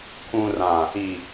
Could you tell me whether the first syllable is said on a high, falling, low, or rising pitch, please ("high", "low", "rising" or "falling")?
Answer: low